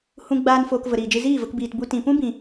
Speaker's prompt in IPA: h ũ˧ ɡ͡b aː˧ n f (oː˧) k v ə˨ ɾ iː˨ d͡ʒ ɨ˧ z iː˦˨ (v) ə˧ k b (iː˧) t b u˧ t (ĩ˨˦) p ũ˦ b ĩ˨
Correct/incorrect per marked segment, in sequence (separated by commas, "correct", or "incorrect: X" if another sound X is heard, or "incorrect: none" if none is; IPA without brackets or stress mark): correct, correct, incorrect: iː˨, incorrect: ĩ˨